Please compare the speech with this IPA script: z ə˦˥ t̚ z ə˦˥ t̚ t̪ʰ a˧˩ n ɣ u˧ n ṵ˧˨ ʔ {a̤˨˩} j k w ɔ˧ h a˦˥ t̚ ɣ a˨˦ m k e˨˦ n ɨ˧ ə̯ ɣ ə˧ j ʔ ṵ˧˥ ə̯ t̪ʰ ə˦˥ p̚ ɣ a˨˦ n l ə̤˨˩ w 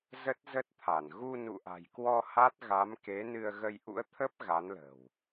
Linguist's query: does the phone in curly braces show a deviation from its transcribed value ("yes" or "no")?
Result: no